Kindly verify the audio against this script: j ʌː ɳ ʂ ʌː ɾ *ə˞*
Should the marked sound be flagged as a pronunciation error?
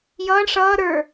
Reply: no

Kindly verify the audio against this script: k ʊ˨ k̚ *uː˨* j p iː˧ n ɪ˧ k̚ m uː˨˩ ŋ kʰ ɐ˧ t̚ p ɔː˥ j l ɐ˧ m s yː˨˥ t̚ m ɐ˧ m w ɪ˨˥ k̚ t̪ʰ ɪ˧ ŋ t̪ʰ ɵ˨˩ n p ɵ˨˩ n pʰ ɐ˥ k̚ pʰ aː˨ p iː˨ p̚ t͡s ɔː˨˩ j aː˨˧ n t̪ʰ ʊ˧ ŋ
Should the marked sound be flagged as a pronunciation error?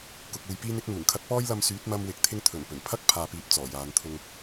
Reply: no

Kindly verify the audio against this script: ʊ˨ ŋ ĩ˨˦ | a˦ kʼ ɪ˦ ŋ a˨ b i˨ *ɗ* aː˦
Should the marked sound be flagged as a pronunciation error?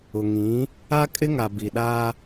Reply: no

